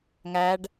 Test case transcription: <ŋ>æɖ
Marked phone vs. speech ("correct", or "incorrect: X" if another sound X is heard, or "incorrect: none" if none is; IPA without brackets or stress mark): correct